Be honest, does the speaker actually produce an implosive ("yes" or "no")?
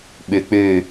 yes